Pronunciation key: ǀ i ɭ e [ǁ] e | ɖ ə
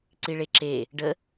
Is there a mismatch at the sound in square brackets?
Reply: no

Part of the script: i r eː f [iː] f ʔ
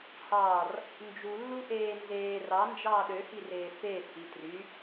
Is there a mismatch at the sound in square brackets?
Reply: yes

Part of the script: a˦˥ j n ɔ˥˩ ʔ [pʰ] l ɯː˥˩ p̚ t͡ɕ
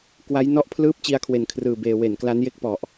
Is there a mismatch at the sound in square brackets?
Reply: no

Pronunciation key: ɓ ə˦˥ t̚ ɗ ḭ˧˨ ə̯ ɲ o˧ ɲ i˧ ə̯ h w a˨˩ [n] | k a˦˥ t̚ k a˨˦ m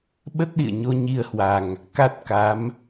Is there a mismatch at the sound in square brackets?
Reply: yes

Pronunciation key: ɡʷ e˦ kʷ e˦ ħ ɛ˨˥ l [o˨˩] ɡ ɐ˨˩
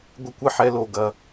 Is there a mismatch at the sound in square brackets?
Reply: no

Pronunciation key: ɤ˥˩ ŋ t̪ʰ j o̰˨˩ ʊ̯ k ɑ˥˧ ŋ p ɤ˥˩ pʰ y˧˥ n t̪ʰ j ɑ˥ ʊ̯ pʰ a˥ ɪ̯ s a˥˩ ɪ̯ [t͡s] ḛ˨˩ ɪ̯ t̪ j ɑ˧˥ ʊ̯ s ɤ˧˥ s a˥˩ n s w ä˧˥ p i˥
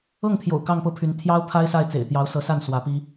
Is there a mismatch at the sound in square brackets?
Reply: no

